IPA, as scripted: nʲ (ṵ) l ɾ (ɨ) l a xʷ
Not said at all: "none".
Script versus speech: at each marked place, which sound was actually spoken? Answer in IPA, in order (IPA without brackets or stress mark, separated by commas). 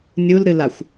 u, ɨ